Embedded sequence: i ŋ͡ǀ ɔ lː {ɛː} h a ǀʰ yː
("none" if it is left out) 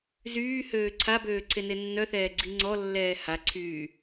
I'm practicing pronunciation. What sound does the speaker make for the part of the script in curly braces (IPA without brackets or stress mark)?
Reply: ɛː